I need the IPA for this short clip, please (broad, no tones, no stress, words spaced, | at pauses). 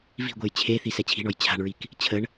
vi̤ɡʷej t͡ɕʰeθi sɛt͡ɕʰi̤ɳɔj t͡ɕʰa̤ɳɹik | t͡ɕʰəɳ